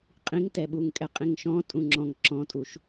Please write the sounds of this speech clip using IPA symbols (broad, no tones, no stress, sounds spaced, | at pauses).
qʼ ĩ ŋ t ɛ ɓ u ŋ kʼ ɛ qʼ ĩ ŋ ʃ ɔ̃ tʼ ũ ŋ͡ǁ ɔ̃ ŋ ǁ ɔ̃ tʼ u ʃ